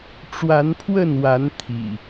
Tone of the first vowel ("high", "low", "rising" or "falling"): rising